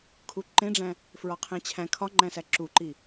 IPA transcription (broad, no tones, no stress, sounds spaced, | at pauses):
kʰ u ǃ ẽ ɖ͡ʐ æ̃ | f ɹ ɒ qʰ ẽ t͡ɕʰ æ̃ kʰ ɒ ŋ͡ǃ æ̃ s æ ǁ u ǃ i